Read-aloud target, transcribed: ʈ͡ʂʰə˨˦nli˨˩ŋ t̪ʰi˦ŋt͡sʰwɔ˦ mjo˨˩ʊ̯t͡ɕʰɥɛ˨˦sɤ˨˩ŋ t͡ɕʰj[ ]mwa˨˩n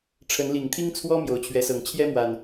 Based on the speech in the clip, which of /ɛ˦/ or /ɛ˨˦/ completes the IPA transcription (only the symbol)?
ɛ˦